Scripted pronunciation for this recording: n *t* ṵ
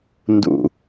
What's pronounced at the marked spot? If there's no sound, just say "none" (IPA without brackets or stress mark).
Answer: d